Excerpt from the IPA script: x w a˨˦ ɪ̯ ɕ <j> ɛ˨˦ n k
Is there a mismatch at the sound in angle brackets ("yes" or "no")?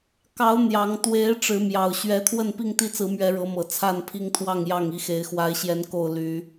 no